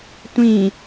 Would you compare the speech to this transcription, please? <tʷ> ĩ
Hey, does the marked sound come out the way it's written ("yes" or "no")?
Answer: yes